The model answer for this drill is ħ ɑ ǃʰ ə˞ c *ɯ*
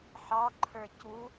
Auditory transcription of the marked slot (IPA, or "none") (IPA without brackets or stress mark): u